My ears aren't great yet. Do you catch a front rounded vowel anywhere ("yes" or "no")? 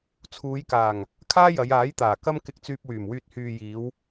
yes